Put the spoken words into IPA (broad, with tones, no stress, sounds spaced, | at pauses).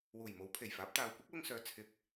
w uː˨˩ j m o˨˥ w pʰ e˨˩ j f aː˨˥ p̚ t̪ aː˨ w kʷ ɐ˥ k̚ w ʊ˧ ŋ s œː˨˧ t͡sʰ ɪ˧ k̚